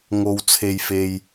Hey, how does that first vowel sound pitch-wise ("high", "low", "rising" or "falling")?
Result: low